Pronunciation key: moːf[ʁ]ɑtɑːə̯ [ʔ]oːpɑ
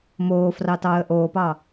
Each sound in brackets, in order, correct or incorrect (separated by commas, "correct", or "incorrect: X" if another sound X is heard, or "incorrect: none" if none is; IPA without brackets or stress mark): incorrect: r, correct